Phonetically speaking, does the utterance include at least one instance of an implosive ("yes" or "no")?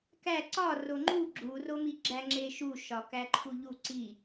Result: no